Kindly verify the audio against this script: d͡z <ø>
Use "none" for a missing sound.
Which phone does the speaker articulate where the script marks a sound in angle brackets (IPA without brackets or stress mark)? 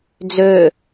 ø